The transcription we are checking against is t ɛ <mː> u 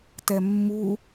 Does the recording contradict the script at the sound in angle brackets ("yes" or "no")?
no